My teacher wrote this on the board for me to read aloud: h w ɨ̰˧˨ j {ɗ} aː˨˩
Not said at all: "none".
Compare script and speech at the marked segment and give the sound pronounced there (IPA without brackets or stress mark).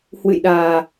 ɗ